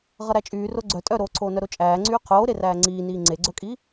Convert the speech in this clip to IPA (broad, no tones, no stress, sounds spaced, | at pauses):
ʁ ʌ ɾ æ t͡ʃʼ yː r o ɡ͡ǀ œ tʼ œ ɾ oː ǀʰ oː n œ ɾ o t͡ʃʼ æː ŋ͡ǀ yː qʰ oː ɾ e r æː ŋ͡ǀ iː n iː ŋ͡ǀ e ɡ͡ǀ œ kʼ i